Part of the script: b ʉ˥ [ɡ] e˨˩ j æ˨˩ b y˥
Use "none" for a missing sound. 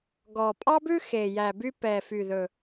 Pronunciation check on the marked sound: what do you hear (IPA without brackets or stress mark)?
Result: x